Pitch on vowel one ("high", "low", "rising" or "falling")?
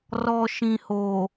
low